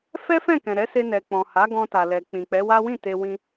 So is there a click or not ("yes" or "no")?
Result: no